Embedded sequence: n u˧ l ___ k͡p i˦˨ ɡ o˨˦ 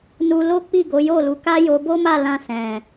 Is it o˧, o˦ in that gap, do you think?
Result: o˦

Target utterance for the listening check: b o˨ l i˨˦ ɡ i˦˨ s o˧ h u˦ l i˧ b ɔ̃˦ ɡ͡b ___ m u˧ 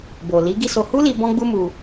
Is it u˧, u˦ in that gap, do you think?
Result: u˦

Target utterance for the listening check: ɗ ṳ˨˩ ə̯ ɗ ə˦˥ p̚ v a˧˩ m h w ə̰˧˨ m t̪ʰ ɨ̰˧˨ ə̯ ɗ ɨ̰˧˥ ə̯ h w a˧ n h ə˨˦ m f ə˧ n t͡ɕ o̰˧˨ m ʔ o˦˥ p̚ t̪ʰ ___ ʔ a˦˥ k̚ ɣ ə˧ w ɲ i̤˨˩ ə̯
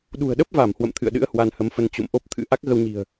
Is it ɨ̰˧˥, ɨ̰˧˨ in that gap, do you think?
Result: ɨ̰˧˥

